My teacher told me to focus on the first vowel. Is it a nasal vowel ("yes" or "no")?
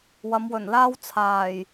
no